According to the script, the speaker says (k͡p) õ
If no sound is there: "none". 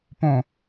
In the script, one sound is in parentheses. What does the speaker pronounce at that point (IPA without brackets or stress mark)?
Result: p